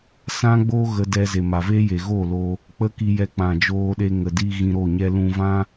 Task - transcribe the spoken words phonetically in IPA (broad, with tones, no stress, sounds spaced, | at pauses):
s ã˦ ɡ͡b oː˦ ɣ ə˧ d ɛ˧ z e˨ m a˨ v eː˦ j e˨ ɣ oː˦˨ l o˧ | k͡p ə˦ k i˧ j ɛ˧ k͡p ã˨ d͡ʒ oː˧ ɗ e˧ ŋ ə˨ d i˧ ɣ ĩ˧ ɾ o˦˨ ɲ ɛ˧ l ũ˧ v ã˦